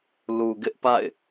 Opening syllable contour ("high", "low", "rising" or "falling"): low